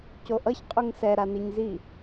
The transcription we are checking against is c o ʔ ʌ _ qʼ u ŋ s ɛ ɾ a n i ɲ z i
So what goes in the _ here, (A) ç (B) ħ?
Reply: A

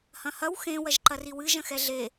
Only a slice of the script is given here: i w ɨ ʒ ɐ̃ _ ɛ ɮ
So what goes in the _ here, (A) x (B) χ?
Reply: A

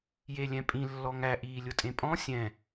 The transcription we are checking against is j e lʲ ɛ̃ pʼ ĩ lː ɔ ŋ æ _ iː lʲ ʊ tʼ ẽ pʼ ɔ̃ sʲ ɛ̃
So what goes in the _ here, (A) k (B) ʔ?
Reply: B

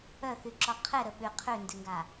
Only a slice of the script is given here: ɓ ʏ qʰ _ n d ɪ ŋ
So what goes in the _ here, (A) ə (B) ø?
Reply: B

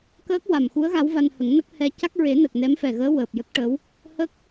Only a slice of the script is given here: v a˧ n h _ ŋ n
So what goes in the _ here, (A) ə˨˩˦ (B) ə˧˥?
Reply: A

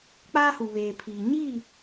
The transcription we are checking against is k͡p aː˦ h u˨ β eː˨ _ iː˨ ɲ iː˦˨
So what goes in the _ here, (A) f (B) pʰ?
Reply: B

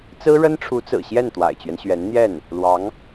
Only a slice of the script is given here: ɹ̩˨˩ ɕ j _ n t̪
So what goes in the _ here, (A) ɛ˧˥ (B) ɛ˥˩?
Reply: B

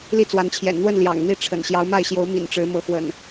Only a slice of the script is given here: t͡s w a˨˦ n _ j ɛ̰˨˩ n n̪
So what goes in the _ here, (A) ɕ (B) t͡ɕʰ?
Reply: B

